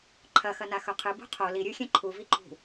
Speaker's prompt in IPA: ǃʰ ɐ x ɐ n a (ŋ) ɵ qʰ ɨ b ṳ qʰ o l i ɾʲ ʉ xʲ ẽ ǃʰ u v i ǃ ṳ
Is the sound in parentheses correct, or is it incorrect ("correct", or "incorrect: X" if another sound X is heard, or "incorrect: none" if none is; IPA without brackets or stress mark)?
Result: incorrect: x